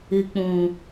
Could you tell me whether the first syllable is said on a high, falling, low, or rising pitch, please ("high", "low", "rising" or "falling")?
low